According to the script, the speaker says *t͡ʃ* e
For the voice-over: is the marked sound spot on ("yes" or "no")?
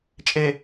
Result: no